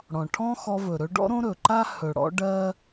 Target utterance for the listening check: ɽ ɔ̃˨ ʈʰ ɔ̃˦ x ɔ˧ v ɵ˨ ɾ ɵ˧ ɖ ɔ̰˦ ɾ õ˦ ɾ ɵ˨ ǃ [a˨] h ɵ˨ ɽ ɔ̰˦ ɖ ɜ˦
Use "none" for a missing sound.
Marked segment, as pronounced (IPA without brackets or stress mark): a˦